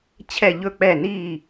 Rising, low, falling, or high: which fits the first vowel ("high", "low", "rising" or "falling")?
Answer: falling